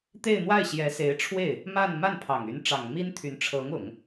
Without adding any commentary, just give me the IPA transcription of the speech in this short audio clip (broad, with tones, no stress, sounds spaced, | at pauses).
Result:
t̪ e˥˧ ɪ̯ n̪ w a˥˩ ɪ̯ ɕ j ɛ˧˥ s e˧˥ ɪ̯ ʈ͡ʂʰ w e˥˩ ɪ̯ | m a˥˧ n m a˥˩ n pʰ ɑ˨˩ ŋ y˧˥ n ʈ͡ʂ ɑ˨˩ ŋ m i˥ n t̪ʰ y˧˥ n ʈ͡ʂʰ ɤ˧˥ ŋ ʊ˨˩˦ ŋ